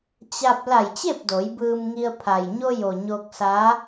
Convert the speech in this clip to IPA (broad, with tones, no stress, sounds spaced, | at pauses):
t͡ɕ a˧ p̚ l a˧˩ j t͡ɕ e˥˨ p̚ d o˩˧ j b ɯː˧ m ŋ i˧ ə̯ pʰ a˩ j ɲ o˧ j o˩ ɲ o˧ k̚ s a˧˥